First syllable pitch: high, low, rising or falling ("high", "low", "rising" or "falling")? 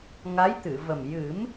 rising